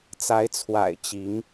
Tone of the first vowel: rising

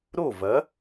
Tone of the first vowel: falling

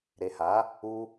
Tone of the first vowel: low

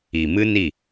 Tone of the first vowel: low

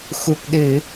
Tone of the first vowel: low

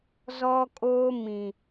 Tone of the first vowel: high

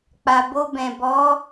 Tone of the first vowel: low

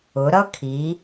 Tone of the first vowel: rising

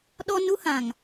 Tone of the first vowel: high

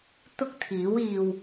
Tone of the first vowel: high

